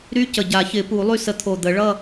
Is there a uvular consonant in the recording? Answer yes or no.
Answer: no